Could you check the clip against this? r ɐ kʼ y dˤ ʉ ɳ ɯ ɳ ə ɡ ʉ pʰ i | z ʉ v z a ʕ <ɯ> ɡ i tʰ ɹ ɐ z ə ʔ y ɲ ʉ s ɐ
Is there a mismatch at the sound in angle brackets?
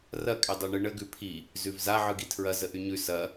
no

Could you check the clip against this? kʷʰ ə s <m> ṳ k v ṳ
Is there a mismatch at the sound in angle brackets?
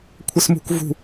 no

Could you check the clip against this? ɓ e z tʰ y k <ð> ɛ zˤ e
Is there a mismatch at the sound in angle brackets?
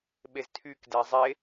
yes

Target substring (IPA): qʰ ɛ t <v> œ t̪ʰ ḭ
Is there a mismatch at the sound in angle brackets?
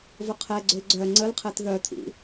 yes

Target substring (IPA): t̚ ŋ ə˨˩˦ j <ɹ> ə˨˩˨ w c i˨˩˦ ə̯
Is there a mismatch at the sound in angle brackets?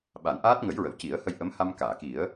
no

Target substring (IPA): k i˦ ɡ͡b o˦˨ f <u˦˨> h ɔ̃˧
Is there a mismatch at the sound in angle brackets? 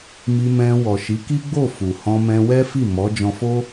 yes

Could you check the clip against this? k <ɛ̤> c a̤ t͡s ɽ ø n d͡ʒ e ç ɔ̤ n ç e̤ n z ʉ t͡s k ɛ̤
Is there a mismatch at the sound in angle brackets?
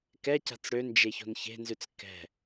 yes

